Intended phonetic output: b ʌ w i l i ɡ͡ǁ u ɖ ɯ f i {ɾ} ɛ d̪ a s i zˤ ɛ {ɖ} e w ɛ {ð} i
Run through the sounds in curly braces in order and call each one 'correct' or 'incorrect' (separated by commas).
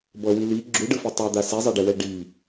incorrect, correct, incorrect